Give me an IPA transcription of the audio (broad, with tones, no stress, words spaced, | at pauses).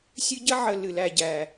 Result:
sʲɨ˦ɟə˥ʕə˨ lɨ˩læ˨ɟæ˩